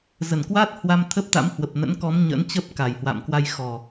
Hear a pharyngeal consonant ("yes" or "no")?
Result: no